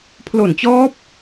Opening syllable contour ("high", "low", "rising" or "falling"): low